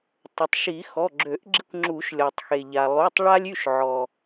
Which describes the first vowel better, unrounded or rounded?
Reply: rounded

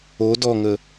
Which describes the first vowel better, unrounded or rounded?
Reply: rounded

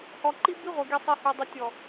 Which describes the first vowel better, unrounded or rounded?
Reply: rounded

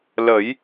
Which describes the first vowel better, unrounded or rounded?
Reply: unrounded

